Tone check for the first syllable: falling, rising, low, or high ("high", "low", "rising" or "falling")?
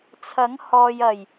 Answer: rising